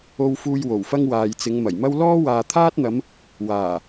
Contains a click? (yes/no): no